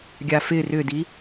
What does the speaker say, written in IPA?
ɡʲafɪ rʏdi

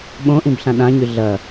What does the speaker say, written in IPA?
ɓõʔĩb ɬãɗãɲʉ ɮɐ

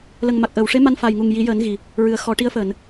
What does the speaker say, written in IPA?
lə˨˩ŋma˨˩k̚ ʔəː˨˩˨wʂe˧˥ ma˧nfa˨˩jŋu˨˩ŋ ji˨˩˦jəː˨˩˦n ɣi˨˩ | ɹɨ˨˩ə̯xɔ˨˩˦ʈi˧˥ə̯fəː˨˩˨n

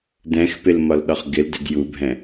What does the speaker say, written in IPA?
dɛ̃xpɪlmɒlɗɒχ ɡɪldɪd jubʱɛ̃

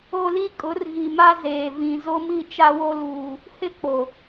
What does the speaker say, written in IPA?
o˦li˦ kʼʊ˨˦rɣi˨ma˦ zeː˨vĩ˨ zo˦mi˦˨t͡ʃa˦wo˦ luː˨ | hɪ˦k͡po˨

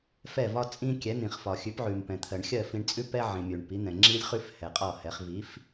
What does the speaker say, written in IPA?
fɛ˥˩vɒ˥ t͡sʼĩ˧ kʲɛ˩˥n̪ĩ˩χfɒ˩ xʲʉ˩˥pʕʉ˩mpɛ̃˩t̪ʰɜ˩ɳ xʲɜ˥˩fĩ˧ɳt͡sʼʉ˥ pɛ˥ʕĩ˩mʲʉ˩ɳ pi˩˥n̪ɛ̃˩ ŋ͡ǁi˧lʲχʉ˧f hɛ˩qʼɒ˥˩hɛ˩˥χ vi˩˥f

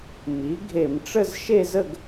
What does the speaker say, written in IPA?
mi˩˥ ɡʱe˧˩˧mʈ͡ʂə˥˧z ʃe˥˧zə˥˧ɡ

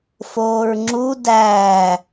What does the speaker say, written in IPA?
foːɹŋ͡ǁu dæː

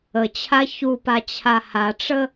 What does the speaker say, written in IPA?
ət͡ɕʰa çupat͡ɕʰa haʈ͡ʂə

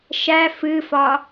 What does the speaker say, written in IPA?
ʃæ fɨfɒ

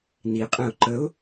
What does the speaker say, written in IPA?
niqʼɛ̃ʊ̯ ǃəʊ̯

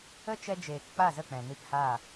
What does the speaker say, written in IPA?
ə˦t͡ʃɛ˧d͡ʒeː˨k k͡pa˦˨zə˦˨k͡pɛ̃˨ni˧p ha˦˨

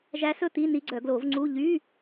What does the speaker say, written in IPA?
ʒæ˧˥sɵ˧˥˧ t̪i˧˥˧ ni˧˥ɡ͡ǀœ˨˩˦ɡlo˨˩˦vŋ͡ǀu˧˥˧ ʎy˧˥˧

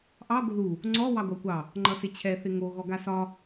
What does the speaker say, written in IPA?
ʔɑ ɡʷɪðu | ŋ͡ǀɔ wɑɡʷɑkʷɑ | ŋ͡ǃʌsɪt͡ɕʰɛ θɪŋo ɣɔɡasɒ

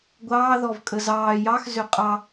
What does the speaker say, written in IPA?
ɡʷɑːðɔvkʼə zɑː jɑxzø qʼɑ

